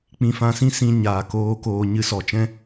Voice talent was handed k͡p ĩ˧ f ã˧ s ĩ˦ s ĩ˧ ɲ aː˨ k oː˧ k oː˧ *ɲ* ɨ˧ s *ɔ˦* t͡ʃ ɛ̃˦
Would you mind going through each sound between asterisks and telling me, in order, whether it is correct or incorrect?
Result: correct, incorrect: ɔ˨

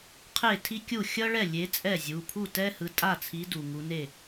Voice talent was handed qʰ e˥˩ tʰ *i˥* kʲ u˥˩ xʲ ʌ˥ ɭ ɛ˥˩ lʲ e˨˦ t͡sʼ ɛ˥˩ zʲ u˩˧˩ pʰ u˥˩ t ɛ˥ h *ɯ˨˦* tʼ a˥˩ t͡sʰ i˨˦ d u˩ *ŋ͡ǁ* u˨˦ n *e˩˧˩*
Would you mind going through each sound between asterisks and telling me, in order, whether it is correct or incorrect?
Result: correct, incorrect: ɯ˩˧˩, incorrect: ŋ, incorrect: e˥˩

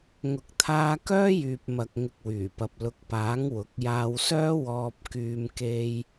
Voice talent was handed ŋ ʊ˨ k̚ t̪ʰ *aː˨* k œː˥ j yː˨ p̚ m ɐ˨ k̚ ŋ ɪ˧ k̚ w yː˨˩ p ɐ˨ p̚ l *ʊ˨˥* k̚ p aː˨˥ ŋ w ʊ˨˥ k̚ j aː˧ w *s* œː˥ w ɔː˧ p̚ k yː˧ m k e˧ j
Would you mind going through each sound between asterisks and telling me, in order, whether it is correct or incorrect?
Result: incorrect: aː˧, correct, correct

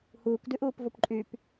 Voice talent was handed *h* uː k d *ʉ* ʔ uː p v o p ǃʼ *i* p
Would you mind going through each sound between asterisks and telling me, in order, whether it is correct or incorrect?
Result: correct, correct, incorrect: y

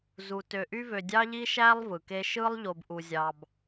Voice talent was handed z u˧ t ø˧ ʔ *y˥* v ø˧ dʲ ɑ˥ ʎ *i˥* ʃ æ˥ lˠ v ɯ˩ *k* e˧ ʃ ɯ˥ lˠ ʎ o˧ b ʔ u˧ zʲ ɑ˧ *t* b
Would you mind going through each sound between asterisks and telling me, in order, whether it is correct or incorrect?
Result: correct, correct, correct, incorrect: none

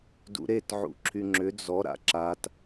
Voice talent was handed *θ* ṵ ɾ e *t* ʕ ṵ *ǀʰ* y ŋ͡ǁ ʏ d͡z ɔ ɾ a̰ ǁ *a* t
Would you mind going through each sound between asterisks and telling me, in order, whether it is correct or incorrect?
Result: incorrect: d, correct, incorrect: ǁʰ, correct

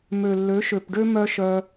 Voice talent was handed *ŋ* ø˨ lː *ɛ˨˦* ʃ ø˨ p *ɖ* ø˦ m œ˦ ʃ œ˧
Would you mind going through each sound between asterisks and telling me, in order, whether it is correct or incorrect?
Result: incorrect: m, incorrect: ø˨˦, correct

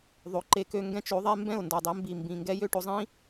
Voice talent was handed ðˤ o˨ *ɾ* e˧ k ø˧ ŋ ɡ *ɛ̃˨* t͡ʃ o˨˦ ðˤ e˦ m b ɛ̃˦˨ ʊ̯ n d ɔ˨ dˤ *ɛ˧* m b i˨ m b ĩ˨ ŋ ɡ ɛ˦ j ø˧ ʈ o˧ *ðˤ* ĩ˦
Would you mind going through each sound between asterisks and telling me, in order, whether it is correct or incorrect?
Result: incorrect: ǃ, incorrect: ɛ̃˦, correct, incorrect: zˤ

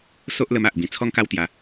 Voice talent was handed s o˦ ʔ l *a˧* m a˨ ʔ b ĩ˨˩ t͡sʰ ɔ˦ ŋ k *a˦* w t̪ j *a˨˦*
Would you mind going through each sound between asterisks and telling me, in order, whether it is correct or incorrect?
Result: incorrect: ə˧, correct, incorrect: a˧

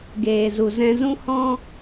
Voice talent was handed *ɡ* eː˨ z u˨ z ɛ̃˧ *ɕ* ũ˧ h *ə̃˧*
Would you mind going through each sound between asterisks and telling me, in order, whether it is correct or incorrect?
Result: correct, incorrect: z, incorrect: ɔ̃˧

